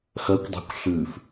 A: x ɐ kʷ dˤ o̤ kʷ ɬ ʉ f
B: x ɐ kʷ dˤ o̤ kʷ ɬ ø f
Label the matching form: A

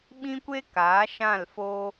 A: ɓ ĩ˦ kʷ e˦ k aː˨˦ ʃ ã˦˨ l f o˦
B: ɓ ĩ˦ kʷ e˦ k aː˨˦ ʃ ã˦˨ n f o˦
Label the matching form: A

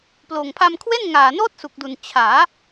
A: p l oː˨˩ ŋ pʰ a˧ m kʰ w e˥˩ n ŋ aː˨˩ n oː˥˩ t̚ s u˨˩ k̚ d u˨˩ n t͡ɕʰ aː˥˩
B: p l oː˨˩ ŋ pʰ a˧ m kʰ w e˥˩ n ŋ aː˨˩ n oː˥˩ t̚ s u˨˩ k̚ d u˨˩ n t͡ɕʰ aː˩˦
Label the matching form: B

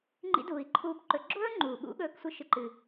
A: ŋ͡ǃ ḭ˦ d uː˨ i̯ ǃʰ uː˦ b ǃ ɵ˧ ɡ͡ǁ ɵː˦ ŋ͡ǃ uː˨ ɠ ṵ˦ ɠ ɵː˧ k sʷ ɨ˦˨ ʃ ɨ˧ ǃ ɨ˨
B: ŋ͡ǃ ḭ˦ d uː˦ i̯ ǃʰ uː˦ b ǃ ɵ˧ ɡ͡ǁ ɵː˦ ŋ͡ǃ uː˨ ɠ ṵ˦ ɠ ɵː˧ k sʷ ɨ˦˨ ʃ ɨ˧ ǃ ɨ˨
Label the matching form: A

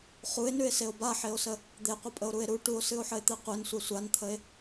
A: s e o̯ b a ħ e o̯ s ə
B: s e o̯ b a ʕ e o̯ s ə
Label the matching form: A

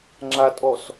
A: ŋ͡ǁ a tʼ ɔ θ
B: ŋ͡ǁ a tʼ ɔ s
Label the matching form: B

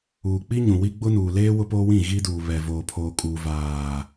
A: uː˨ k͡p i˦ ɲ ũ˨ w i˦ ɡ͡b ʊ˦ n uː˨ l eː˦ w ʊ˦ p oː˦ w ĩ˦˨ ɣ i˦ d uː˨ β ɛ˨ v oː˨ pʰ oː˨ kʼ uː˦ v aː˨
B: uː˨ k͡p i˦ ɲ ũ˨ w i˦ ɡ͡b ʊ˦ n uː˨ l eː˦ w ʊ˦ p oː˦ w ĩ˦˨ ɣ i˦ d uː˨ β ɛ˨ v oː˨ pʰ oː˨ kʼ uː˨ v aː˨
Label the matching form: B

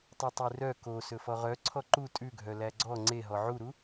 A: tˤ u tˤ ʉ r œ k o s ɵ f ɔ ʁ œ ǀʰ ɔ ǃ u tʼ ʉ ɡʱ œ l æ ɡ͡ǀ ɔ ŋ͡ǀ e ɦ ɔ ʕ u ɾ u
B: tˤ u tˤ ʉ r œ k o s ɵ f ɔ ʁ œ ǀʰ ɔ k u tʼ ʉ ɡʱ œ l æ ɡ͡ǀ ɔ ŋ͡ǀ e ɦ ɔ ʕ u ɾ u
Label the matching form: A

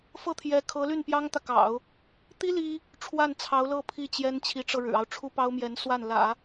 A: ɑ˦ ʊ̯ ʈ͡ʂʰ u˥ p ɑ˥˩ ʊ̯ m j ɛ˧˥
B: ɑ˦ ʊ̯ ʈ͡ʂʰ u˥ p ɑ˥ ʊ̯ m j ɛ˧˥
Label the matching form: B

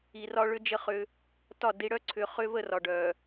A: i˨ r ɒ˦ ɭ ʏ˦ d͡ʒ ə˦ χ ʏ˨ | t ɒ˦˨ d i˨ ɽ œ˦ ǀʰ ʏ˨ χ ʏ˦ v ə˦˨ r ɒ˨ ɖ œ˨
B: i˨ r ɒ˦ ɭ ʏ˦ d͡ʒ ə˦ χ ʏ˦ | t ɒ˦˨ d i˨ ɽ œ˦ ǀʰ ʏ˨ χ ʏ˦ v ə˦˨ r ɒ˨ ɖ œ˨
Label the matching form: B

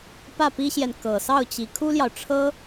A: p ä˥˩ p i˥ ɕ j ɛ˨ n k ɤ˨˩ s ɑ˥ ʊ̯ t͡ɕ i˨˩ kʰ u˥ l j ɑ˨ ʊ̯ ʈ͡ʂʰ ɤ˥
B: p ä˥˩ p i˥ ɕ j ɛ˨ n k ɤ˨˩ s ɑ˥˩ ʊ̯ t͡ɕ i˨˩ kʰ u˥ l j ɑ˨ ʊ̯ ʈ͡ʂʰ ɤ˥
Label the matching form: B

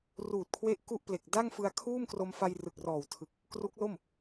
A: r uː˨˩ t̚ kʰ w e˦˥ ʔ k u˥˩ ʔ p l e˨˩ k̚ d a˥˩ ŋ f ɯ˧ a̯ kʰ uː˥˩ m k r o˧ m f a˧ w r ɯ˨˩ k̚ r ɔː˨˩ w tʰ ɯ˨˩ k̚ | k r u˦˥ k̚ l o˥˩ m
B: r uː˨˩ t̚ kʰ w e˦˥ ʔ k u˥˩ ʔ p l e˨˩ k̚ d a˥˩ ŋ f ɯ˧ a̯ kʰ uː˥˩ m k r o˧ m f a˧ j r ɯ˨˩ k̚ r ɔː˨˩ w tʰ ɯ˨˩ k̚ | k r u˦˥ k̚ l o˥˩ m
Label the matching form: B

